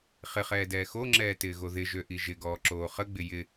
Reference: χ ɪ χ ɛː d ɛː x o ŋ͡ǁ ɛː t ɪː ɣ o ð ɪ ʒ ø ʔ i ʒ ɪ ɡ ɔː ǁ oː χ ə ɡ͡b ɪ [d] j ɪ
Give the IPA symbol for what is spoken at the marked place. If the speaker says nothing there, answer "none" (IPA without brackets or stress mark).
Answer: none